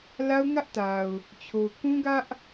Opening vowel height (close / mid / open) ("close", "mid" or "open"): open